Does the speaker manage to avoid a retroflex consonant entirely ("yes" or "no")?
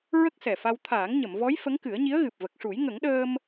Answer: no